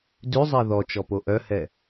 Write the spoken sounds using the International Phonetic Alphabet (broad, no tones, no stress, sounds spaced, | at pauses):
d ʉ zˤ ɛ ð ɔ t͡ʃ ɔ p o ʔ œ h ɛ